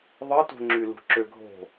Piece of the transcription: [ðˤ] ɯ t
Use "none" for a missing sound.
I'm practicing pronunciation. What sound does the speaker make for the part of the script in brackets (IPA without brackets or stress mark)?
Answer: ðˤ